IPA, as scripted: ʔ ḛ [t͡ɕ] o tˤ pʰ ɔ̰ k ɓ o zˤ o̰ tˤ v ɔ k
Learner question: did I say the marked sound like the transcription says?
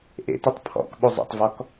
no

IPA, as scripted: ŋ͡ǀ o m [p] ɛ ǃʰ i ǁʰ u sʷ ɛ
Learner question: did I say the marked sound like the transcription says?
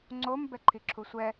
no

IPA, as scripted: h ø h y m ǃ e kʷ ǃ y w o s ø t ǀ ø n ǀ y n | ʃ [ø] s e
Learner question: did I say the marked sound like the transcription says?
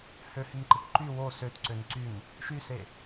no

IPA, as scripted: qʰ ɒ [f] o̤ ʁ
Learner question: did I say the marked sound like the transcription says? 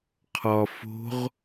yes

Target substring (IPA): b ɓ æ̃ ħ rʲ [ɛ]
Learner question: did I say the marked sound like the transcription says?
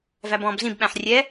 yes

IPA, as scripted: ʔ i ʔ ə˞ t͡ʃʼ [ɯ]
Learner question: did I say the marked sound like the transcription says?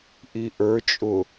no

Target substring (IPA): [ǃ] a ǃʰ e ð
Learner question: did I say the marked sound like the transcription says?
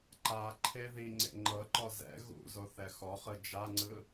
yes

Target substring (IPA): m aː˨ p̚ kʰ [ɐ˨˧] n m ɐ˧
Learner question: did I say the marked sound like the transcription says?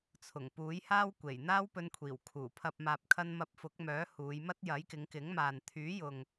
no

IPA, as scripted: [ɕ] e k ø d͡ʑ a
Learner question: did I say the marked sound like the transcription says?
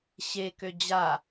yes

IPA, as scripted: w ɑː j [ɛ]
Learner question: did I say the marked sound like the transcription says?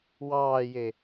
no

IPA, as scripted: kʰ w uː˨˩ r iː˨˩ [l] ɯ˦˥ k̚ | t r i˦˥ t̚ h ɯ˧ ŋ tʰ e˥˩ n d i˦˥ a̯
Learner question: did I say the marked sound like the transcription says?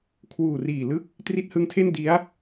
yes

